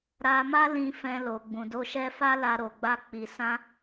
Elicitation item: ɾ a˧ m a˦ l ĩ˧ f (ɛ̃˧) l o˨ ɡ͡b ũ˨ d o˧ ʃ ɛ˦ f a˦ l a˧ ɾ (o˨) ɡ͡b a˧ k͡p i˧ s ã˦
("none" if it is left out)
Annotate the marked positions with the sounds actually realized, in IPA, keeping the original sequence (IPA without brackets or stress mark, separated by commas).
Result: ɛ̃˧, o˨